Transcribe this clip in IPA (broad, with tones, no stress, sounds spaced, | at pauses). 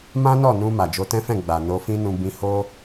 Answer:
m ã˦ n ɔ˦˨ n ũ˧ m a˨ d͡ʒ o˧ t ɛ̃˦ f ɛ̃˦˨ ɡ͡b a˨ n o˧ f ĩ˦ n ũ˧ b ĩ˧ h o˦